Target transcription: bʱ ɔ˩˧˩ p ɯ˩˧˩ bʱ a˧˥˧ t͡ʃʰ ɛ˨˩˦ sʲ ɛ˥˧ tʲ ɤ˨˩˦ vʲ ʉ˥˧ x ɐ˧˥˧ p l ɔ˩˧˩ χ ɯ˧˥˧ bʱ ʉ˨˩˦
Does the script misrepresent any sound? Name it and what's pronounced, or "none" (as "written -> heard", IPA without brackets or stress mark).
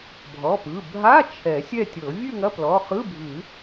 x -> ŋ